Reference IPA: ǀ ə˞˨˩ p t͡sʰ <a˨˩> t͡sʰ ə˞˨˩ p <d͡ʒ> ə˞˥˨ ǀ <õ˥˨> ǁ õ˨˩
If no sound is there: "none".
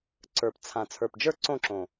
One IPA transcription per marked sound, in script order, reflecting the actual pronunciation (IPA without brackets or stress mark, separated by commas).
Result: ã˨˩, d͡ʒ, õ˥˨